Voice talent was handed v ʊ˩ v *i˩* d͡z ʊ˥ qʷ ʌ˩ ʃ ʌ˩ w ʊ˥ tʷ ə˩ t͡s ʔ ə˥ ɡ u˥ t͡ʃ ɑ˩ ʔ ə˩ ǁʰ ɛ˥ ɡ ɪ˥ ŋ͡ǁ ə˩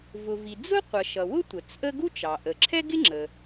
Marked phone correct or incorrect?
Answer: correct